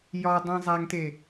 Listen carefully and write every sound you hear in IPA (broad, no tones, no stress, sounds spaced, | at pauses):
j ɒ dˤ ĩ zˤ æ ŋ t e